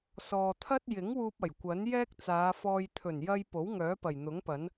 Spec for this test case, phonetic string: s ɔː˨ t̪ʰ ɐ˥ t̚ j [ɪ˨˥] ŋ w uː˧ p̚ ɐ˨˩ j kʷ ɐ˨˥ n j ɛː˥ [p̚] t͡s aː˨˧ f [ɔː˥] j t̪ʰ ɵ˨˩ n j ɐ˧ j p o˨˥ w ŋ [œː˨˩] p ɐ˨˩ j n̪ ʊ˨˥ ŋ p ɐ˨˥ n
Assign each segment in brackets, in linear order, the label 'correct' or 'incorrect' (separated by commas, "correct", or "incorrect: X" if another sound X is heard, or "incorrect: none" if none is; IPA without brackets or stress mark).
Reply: correct, incorrect: k̚, incorrect: ɔː˧, incorrect: œː˨˥